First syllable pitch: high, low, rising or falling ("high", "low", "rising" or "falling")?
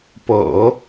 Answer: low